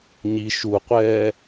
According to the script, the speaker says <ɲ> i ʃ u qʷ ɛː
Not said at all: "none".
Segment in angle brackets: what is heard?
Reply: ɲ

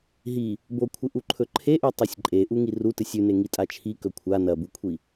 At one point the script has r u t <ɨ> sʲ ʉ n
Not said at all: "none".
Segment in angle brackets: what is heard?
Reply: ɨ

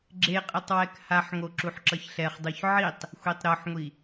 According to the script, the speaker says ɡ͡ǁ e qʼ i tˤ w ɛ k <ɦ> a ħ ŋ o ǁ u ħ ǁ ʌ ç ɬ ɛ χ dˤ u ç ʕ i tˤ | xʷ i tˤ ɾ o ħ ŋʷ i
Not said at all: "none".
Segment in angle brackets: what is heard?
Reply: h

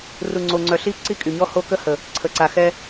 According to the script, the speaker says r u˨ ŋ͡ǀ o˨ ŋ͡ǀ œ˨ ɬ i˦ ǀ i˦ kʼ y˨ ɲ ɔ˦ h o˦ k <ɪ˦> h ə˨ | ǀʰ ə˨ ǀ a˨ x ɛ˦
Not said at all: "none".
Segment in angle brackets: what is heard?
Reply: ə˦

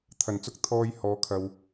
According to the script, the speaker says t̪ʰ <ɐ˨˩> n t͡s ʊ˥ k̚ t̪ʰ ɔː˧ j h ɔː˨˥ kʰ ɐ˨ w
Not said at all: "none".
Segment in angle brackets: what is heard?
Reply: ɐ˨˩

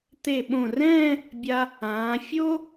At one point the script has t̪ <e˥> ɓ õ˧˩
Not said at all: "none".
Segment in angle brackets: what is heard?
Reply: e˧˩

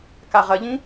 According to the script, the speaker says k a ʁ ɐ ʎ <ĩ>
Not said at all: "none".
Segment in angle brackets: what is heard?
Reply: ĩ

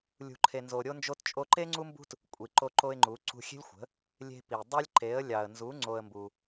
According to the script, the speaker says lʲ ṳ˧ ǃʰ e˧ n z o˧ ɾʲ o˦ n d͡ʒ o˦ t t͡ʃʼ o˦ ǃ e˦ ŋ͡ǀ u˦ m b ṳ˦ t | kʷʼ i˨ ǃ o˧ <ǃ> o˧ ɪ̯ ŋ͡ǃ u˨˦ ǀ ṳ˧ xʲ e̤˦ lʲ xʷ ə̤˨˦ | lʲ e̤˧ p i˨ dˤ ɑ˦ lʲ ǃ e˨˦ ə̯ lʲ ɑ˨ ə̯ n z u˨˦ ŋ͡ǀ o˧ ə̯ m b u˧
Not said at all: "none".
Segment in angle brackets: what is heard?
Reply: ǃ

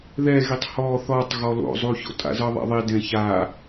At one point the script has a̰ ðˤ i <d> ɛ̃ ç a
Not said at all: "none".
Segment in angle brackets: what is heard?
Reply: d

